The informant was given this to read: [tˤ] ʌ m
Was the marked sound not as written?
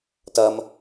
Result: yes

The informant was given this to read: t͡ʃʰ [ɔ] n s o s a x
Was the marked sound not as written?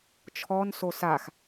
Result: no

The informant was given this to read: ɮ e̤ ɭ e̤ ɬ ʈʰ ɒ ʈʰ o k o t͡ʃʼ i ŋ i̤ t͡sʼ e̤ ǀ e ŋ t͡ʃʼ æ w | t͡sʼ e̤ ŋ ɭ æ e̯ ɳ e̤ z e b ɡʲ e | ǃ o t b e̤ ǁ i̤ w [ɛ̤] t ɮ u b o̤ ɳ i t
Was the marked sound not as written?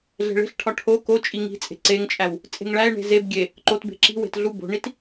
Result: yes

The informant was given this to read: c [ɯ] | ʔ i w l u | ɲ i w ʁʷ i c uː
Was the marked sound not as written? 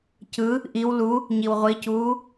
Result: no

